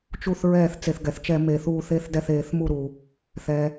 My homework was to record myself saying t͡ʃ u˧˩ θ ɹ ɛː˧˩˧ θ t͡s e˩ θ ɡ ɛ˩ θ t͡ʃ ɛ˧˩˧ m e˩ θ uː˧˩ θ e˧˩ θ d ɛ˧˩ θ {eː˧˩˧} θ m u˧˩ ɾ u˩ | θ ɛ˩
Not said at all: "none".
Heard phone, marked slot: eː˧˩˧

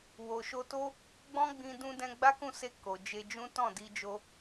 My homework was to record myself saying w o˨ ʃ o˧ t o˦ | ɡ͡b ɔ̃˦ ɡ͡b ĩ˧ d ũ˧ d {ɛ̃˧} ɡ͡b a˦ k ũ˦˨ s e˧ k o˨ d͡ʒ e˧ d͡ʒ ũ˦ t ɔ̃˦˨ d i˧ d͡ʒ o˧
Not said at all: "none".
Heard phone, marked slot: ɛ̃˧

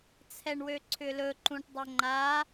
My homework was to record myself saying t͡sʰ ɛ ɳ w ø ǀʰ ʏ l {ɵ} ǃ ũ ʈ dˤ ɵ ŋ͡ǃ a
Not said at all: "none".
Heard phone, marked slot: ɵ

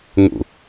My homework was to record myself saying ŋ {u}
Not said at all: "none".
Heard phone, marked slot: ṵ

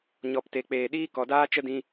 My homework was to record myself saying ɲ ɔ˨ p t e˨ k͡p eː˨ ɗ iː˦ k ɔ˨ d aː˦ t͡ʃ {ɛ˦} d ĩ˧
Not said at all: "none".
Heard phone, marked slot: ə˦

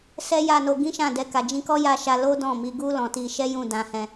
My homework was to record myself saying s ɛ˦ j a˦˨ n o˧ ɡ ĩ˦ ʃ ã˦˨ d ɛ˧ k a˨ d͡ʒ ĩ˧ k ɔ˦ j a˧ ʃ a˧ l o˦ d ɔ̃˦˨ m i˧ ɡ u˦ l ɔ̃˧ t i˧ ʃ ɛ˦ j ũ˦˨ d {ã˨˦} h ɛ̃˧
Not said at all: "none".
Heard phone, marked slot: ã˧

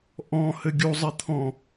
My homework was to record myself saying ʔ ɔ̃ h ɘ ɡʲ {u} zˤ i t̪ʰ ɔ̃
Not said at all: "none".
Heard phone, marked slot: u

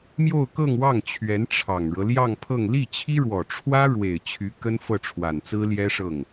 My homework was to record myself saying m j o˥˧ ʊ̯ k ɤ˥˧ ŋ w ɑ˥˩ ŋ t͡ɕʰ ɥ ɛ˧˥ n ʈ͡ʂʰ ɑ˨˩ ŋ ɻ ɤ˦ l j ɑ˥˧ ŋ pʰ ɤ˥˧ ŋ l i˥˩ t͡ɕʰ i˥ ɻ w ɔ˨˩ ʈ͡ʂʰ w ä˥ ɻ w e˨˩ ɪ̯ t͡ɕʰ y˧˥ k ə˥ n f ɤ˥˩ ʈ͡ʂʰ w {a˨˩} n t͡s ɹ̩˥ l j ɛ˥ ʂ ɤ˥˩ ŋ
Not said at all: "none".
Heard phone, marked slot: a˨˩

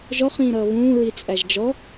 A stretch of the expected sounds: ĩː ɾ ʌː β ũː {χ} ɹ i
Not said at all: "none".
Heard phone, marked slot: none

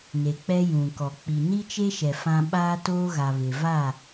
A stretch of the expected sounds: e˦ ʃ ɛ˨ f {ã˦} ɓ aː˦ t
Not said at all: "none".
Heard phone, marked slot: ã˦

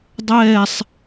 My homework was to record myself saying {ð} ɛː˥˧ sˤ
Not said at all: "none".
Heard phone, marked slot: dˤ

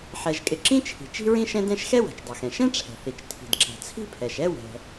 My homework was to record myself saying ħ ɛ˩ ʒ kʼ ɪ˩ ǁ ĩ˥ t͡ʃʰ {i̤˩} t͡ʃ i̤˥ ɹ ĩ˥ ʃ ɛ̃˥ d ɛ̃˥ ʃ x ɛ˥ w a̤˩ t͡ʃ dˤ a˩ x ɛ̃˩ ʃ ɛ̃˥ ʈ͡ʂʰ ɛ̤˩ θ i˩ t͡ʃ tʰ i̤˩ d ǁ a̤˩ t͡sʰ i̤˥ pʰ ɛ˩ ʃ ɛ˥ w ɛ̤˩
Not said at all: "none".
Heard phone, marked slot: i̤˩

